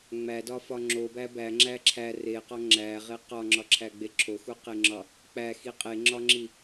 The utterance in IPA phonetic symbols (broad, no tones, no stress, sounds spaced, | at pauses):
ŋ͡m æ d ɒ f ɒ ŋ͡ǁ o b æ b æ ŋ͡ǁ æ ǁʰ æ r e q ɒ ŋ͡ǁ æ ʁ e q ɒ ŋ͡ǁ ɒ ǁʰ æ ɡ͡b e ǁʰ o x u q e ŋ͡ǁ ɒ | k͡p æ x i qʼ e ŋ͡ǁ ɒ ŋ͡ǁ i